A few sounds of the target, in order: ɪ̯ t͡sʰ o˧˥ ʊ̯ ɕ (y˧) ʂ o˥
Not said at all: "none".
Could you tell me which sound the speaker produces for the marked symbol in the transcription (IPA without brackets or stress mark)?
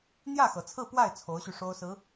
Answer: y˧